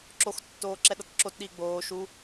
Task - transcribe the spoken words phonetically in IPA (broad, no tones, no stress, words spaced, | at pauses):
ǁox tːoːǁɛɗʌtǁot ɗiːɡ͡boː ʃu